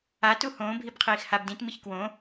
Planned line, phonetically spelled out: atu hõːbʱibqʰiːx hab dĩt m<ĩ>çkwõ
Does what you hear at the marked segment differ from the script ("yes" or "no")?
yes